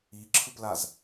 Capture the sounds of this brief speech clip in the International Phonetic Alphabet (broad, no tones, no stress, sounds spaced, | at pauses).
i ǁʰ ɯ p l a z